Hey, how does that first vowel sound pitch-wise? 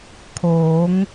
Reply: rising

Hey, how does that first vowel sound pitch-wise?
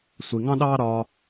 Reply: low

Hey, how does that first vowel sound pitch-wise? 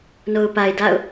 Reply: low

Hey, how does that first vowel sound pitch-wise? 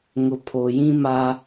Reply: low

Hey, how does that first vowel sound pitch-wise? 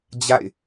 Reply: falling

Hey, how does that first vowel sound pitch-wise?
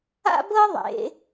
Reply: high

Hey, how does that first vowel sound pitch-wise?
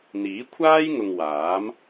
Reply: rising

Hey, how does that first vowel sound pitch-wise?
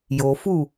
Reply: low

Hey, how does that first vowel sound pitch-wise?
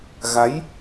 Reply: rising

